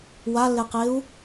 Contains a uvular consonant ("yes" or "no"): yes